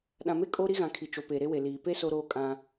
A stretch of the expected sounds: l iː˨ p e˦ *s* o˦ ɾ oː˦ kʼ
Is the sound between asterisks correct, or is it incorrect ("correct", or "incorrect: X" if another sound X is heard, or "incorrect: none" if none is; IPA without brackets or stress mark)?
correct